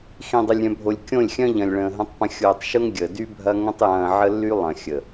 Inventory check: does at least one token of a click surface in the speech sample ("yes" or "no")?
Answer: no